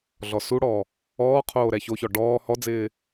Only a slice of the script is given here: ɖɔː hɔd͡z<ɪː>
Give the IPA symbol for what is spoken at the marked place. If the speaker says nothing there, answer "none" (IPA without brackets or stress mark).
ɪː